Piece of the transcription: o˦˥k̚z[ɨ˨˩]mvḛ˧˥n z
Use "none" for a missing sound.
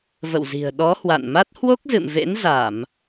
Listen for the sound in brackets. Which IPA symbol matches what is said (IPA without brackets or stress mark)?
ɨ̰˧˨